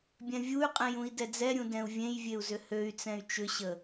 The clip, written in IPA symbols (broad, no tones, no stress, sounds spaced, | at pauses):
bʲ ɛ̃ vʲ u y̯ qʼ ɛ̃ j ũ i̯ d ɛ d͡z ɛ ɾʲ ũ d ɛ̃ u̯ vʲ ẽ j vʲ e u̯ z ʏ h ø y̯ t͡s ɛ̃ y̯ t͡ʃ ʏ ɕ ə